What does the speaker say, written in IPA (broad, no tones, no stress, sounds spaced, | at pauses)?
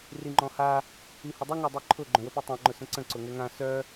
r i ŋ͡ǃ ɔ̃ h a | i h ə dˤ ʏ ŋ ɔ dˤ i ǃʰ ʊ ɡ͡ǃ œ̃ w ə p i tˤ ã ŋ͡ǃ ʊ s ə̃ ǀ ə̃ ǀ ʊ ŋ ɛ ŋ ã s œ